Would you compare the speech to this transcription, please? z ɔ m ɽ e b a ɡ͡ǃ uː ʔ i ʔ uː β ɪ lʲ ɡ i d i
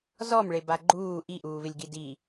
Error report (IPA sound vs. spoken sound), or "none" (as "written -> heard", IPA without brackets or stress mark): ɽ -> ɭ